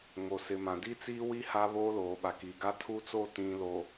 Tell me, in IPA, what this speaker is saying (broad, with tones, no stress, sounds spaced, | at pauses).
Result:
ŋ o˨ s ɪ˨ m ã˨ d i˦ t͡s iː˦ w i˦ h a˦ β oː˦ l oː˨ ɓ a˨ k iː˨ ɡ a˦ tʰ u˦ t͡s o˦˨ t ĩ˨ l o˨